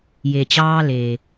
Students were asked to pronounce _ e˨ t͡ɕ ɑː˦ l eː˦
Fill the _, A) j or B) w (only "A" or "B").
A